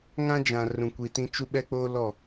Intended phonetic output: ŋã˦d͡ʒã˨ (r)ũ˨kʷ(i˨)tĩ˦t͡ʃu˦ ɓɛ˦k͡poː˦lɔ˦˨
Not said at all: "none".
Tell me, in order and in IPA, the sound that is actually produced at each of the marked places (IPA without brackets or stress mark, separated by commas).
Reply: r, i˨